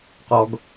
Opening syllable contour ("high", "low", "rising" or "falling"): low